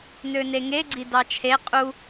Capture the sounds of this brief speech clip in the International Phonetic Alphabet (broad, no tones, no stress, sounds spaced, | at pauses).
n ø n e ŋ e ɡ͡ǀ i d ɑ t͡ʃʰ e qʼ u